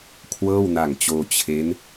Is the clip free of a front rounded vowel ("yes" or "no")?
yes